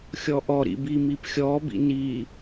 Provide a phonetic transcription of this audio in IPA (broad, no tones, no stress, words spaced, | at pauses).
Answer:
xʲɔʔɔ ɾḭbimipxʲɔ bḭni